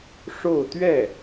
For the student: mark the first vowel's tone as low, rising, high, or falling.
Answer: falling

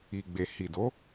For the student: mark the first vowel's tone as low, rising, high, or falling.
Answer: low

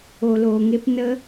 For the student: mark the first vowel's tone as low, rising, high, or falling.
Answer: low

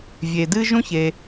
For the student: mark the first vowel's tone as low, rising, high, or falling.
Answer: low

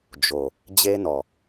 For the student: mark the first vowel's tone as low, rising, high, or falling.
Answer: low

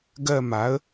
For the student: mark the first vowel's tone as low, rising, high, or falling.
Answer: falling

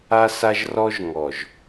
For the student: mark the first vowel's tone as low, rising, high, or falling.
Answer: high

